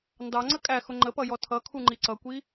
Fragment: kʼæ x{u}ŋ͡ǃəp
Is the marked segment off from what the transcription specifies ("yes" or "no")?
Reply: yes